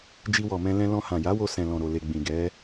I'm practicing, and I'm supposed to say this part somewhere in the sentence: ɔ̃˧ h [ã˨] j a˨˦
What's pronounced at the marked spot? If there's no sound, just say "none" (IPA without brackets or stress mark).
ã˨